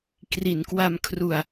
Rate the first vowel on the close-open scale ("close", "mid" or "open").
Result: close